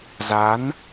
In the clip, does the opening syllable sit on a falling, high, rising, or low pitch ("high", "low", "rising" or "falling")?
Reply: rising